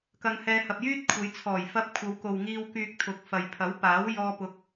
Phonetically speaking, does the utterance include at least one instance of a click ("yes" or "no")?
no